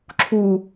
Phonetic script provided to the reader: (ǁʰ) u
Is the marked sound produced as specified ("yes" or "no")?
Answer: yes